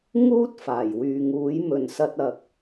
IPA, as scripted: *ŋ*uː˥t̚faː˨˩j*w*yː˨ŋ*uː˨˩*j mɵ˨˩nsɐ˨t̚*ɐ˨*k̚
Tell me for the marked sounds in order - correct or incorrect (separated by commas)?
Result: correct, correct, incorrect, correct